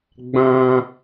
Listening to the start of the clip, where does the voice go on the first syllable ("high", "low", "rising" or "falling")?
high